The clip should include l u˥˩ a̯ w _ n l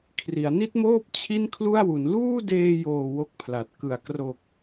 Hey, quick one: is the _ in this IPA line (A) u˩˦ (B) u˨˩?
A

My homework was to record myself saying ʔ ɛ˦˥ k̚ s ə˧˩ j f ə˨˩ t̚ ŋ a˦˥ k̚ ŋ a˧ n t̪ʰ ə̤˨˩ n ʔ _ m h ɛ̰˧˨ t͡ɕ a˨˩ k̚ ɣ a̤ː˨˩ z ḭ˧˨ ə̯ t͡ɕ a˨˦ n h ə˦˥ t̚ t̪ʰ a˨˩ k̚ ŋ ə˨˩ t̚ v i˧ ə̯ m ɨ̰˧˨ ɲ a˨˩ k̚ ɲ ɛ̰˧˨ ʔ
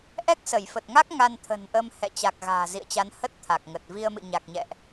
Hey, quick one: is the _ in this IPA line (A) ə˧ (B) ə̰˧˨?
A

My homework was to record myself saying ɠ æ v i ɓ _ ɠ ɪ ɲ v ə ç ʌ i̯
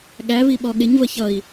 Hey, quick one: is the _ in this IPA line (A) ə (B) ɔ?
B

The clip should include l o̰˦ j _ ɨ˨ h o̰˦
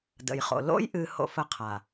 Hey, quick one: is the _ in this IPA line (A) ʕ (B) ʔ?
B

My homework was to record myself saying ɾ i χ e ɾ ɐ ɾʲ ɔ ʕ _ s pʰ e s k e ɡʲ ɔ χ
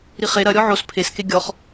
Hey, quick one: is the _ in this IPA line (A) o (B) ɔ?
A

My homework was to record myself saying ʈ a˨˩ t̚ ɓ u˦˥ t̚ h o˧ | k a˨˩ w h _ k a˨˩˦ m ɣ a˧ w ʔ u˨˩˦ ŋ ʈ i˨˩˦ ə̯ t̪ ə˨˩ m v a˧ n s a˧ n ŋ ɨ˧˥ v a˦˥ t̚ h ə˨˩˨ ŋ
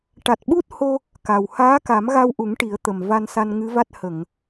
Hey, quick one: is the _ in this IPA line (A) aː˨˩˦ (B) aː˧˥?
B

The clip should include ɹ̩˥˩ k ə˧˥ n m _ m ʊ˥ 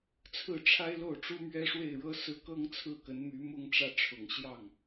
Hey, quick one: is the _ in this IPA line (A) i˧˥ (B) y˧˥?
B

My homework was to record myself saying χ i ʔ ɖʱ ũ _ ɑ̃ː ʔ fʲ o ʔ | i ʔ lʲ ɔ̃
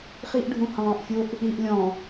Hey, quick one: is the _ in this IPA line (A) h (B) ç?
A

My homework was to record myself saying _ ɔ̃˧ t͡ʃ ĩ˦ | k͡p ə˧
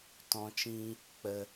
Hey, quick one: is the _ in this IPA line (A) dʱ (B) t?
B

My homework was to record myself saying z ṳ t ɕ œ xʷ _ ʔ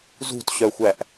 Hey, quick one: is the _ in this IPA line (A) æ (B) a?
A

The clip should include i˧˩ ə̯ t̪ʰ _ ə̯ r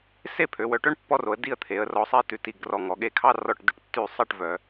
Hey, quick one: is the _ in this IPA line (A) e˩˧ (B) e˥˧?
A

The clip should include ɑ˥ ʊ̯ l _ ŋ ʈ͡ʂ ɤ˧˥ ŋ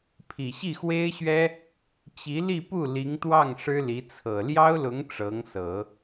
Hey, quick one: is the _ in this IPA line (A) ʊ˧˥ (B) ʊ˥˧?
A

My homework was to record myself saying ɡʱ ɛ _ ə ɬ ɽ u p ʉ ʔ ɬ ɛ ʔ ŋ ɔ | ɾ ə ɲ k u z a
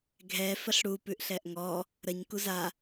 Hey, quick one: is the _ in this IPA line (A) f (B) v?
A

